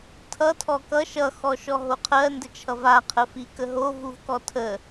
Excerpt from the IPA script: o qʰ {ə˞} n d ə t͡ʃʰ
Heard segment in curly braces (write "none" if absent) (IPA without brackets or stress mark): ɜ